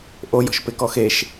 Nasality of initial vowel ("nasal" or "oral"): oral